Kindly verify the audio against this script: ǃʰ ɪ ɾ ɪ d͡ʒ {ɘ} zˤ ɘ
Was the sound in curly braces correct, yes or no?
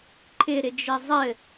yes